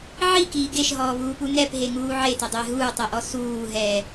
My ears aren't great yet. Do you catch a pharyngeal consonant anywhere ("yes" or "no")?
yes